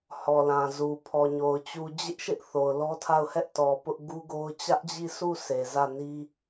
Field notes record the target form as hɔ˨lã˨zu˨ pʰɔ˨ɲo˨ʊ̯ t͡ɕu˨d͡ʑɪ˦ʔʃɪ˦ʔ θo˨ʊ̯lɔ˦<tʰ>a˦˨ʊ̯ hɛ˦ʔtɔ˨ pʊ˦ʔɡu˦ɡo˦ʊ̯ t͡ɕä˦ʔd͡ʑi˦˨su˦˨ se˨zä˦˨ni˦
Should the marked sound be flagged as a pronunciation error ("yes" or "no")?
no